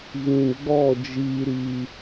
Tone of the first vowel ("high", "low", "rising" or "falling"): low